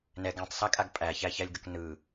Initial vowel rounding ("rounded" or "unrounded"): unrounded